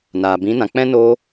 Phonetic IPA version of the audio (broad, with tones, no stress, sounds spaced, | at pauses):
n aː˨ b ĩ˨˦ n ã˨ k͡p ɛ̃˦ n o˦